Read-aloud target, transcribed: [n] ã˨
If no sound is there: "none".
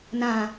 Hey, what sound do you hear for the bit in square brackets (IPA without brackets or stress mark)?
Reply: n